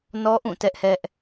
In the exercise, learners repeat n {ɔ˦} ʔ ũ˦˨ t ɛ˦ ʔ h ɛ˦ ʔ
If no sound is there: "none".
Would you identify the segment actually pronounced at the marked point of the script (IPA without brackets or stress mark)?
ɔ˦